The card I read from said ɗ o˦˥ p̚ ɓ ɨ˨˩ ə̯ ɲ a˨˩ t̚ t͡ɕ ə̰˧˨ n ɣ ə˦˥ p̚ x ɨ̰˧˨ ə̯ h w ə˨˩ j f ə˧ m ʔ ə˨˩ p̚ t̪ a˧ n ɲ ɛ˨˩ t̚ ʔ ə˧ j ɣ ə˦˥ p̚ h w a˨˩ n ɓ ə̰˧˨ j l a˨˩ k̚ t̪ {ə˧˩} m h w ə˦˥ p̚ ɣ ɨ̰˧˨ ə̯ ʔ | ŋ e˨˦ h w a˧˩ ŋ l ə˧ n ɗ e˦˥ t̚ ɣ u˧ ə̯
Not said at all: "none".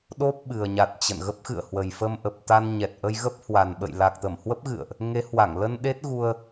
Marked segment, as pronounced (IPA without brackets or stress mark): ə˧˩